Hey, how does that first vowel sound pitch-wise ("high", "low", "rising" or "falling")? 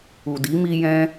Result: low